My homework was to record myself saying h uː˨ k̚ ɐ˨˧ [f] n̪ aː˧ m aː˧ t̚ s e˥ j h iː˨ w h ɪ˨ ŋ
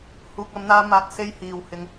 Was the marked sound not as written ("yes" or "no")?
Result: yes